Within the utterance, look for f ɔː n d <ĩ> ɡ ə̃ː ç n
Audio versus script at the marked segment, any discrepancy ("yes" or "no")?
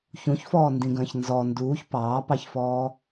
no